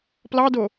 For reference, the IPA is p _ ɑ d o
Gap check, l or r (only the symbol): l